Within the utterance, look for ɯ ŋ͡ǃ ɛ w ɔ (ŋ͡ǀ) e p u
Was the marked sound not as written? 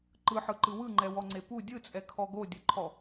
no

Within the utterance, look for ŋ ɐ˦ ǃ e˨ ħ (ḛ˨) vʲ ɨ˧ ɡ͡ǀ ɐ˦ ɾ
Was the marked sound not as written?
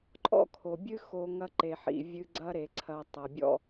yes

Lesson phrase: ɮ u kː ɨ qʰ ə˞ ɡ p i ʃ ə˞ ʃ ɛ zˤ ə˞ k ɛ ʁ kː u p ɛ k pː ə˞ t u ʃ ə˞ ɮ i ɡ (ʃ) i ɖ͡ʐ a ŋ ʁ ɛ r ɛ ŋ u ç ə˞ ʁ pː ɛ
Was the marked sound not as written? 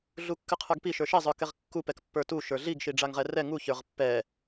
no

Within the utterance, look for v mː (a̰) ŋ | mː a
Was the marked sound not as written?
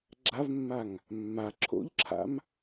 yes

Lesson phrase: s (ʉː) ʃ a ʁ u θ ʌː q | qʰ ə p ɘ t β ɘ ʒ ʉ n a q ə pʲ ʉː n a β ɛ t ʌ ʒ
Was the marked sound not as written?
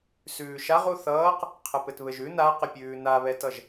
no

